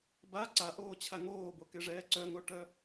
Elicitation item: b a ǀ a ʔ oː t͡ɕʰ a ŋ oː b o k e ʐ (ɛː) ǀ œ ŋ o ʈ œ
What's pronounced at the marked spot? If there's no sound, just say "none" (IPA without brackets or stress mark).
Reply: ɛː